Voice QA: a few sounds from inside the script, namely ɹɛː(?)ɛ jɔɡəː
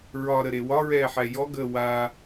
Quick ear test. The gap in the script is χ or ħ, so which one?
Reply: ħ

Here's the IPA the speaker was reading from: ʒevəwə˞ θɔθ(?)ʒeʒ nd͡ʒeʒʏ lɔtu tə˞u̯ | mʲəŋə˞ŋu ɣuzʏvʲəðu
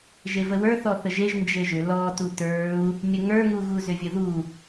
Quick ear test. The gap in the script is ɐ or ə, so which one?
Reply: ə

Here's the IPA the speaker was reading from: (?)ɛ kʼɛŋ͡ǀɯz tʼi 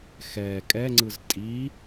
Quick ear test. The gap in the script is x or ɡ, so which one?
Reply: x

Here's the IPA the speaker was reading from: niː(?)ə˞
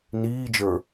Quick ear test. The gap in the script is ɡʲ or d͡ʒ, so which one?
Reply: d͡ʒ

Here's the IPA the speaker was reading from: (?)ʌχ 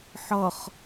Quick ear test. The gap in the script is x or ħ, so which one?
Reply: ħ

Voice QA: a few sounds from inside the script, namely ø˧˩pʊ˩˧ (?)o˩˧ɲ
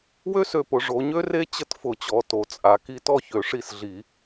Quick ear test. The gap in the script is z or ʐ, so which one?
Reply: ʐ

